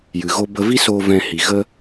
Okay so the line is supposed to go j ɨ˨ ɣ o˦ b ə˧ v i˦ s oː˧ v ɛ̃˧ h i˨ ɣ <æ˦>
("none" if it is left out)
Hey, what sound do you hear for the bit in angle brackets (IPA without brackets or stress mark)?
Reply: ə˦